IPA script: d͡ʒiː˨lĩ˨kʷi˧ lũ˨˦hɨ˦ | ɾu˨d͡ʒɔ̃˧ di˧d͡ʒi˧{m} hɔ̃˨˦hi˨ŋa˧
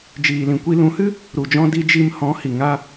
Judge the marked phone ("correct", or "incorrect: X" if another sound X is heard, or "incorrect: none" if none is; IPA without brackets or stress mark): correct